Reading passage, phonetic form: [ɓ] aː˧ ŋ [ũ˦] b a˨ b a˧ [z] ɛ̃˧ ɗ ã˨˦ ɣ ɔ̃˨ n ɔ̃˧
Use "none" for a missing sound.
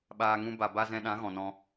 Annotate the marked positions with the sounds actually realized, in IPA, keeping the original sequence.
ɓ, ũ˦, z

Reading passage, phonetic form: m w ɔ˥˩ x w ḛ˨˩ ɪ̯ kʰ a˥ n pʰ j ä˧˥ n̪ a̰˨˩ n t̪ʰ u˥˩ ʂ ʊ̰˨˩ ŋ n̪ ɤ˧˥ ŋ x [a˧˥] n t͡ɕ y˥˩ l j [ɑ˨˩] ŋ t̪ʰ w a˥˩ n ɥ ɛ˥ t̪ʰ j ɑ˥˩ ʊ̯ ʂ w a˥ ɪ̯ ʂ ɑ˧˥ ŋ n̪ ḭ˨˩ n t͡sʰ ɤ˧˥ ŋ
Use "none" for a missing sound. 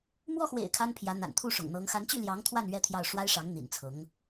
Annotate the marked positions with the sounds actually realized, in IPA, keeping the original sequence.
a˧˥, ɑ˧˥

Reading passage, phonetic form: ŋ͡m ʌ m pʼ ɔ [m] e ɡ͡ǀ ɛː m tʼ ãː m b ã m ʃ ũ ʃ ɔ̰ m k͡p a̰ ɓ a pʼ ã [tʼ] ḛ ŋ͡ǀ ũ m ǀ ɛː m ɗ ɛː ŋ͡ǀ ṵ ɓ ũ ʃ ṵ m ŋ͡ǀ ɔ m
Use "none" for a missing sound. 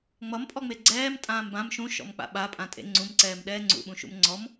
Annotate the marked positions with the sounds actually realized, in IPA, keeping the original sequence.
ŋ͡m, tʼ

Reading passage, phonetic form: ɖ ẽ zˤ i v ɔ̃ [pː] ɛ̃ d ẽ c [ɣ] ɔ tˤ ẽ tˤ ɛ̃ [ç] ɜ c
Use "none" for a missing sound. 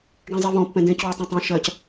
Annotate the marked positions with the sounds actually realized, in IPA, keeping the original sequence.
pː, w, ʃ

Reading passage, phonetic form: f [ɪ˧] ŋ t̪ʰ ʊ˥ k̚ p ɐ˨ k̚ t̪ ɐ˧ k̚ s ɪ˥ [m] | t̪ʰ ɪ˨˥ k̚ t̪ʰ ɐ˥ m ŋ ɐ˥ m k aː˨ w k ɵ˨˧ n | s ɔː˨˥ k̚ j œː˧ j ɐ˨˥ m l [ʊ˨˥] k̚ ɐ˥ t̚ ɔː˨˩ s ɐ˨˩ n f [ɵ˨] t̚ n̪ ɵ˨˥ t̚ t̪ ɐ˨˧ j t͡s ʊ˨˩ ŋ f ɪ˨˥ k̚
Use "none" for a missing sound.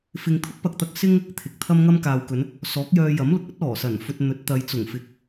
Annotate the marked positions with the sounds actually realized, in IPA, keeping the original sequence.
ɪ˧, ŋ, ʊ˨˥, ɵ˧

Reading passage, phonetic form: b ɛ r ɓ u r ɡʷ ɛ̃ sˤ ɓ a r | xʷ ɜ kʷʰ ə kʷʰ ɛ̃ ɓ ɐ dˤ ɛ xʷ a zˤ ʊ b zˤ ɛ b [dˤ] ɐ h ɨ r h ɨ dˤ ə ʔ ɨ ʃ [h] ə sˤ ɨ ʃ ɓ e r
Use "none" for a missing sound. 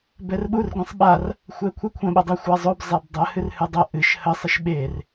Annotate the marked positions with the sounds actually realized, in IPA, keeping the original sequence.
dˤ, h

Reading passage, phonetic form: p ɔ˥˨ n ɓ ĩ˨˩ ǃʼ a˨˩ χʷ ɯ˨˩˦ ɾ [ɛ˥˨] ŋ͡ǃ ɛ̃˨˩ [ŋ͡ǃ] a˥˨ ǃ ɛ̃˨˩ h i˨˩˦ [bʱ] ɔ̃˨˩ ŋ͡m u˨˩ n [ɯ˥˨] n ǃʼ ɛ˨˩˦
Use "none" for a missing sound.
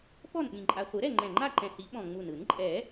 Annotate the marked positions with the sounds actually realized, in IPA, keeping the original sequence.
ɛ˥˨, ŋ͡ǃ, ɓ, ɯ˨˩˦

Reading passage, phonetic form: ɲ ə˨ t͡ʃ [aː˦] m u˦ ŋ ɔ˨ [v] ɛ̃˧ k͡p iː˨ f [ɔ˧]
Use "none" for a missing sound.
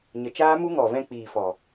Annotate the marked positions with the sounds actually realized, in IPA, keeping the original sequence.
aː˦, v, ɔ˨

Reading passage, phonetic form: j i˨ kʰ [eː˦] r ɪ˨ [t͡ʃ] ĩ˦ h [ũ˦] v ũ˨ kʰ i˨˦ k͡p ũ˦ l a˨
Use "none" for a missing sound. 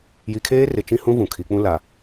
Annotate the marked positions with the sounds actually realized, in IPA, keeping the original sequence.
eː˦, t͡ʃ, ũ˦

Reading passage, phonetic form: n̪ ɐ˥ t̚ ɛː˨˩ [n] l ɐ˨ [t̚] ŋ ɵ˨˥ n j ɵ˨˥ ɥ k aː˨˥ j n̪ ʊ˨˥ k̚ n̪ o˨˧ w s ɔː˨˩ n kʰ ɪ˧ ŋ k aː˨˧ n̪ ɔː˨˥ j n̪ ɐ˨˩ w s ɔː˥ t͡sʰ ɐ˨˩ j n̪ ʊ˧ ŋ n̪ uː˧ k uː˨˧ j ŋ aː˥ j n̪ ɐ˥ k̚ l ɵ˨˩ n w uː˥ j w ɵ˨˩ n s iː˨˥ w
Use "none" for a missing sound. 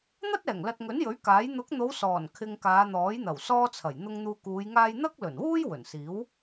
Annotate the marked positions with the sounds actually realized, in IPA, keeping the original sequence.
ŋ, t̚

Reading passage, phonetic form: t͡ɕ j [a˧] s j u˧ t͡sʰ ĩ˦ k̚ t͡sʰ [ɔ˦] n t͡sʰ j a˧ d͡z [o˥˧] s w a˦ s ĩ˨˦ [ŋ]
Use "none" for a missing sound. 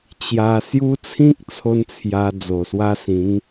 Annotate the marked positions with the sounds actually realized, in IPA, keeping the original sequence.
a˧, o˦, o˨˩, ŋ

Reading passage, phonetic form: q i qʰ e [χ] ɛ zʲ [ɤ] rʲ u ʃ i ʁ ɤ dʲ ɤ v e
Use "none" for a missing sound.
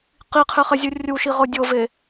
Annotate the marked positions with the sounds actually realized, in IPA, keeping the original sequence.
χ, ɯ

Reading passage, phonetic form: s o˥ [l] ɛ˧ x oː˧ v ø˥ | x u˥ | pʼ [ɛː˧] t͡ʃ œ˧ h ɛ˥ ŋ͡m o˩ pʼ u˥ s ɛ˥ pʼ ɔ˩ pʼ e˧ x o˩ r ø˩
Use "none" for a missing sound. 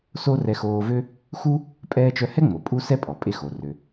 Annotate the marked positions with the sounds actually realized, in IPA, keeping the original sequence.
r, ɛː˧

